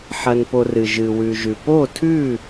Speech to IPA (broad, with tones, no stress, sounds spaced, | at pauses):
ħ ɐ˨ n p o˨ r ɨ˨ ʒ ɨ˨ w ʉ˨ ʒ ʉ˨ p o˥˨ tʰ ʉ˥˨